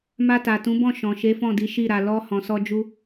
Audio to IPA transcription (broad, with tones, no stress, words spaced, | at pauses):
ma˧ta˨tũ˨˦bɔ̃˦˨ ʃɔ̃˨ʃe˨˦fɔ̃˦˨di˨˦ ʃi˦˨ɾa˧ lɔ˦ hɔ̃˧sɔ˦ d͡ʒu˦